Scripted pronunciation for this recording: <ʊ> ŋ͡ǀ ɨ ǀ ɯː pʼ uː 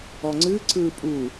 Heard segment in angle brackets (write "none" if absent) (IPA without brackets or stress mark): ɔ